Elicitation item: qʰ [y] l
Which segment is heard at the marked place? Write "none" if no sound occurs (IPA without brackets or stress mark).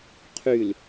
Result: y